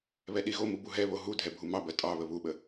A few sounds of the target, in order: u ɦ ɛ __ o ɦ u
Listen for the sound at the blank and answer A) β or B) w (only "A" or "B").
A